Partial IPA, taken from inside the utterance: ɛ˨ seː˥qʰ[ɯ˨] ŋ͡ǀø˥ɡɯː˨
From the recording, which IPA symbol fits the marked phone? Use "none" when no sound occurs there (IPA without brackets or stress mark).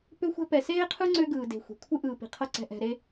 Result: ɯ˥